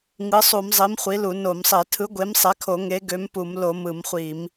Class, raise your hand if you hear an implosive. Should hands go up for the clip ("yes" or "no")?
no